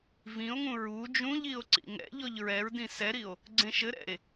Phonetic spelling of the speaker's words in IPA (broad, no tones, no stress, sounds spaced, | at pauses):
v ĩ o̯ ŋ ũ ɹ u d͡ʒ ũ ʎ i o̯ ǀ ḭ ŋ ɛ̰ ʎ ɔ ʎ ɹ ɛ ɹ d ĩ s ɛ ɾ i o̯ | ɡ͡ǀ ẽ ʃ ɘ ɾ ɛ̰ e̯